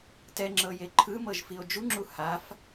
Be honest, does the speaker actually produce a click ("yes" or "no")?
yes